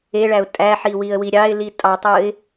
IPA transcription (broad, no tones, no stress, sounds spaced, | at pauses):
e ɭ æ ʊ̯ tʼ æ ħ i w i ə̯ w i ɾʲ ɑ ɪ̯ l i tʼ ɑ tˤ ɯ ɪ̯